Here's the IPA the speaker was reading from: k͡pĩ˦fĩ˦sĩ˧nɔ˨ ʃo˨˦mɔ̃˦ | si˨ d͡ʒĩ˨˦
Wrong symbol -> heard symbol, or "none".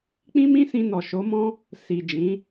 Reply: f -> m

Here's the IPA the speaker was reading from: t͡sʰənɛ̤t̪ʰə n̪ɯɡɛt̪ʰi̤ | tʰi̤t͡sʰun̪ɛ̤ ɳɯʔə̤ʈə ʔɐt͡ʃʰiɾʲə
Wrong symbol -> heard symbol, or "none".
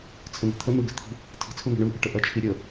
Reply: ɛ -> ɛ̤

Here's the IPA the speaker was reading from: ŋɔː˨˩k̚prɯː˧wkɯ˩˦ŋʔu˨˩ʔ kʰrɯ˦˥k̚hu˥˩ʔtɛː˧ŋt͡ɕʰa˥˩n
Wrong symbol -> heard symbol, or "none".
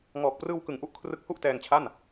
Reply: none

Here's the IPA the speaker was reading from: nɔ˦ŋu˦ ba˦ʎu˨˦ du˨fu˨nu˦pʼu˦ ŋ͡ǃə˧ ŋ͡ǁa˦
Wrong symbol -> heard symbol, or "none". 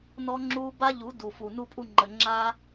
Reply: ŋ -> ŋ͡ǁ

